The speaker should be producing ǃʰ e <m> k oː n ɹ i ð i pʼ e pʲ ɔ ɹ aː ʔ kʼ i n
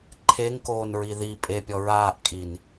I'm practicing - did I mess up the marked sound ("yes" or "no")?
yes